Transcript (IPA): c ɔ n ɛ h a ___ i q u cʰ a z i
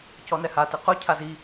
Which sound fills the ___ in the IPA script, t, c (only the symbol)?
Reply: t